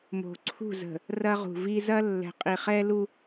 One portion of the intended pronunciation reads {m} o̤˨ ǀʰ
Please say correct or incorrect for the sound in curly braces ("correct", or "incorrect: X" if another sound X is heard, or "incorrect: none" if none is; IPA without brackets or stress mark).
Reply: correct